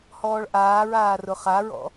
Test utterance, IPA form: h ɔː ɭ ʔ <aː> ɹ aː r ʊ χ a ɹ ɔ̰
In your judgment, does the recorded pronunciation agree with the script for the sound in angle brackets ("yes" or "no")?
yes